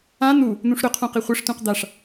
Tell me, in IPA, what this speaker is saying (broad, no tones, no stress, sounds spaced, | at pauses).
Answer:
ã n̪ u | n̪ ũ ʂ ɾ ɵ qʰ ũ q i χʷ i ʂ t ũ q d̪ a ʂ